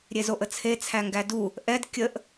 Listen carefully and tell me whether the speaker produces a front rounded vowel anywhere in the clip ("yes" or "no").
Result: no